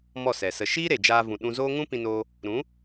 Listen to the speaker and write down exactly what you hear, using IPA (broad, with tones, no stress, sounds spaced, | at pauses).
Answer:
m ɔ˦˨ s ɛ˨ s ə˧ ʃ iː˦ ɾ e˨ d͡ʒ aː˧ v ũ˨ ɗ ũ˧ z oː˦ ŋ ũ˦ p ĩ˧ n oː˧ | ɾ ũ˨˦